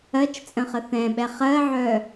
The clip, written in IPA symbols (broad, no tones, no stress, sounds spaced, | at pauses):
ɜ t͡ʃ t͡sʼ ə̃ χ ə θ ɛ̃ ɓ ɛ χ ɜ ʕ œ